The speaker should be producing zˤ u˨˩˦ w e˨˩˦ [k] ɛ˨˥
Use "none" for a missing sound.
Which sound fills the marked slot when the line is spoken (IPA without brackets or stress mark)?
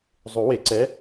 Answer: ǀ